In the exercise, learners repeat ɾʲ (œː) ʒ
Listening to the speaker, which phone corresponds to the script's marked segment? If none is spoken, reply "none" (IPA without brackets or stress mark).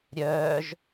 œː